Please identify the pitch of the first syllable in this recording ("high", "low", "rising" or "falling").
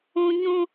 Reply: high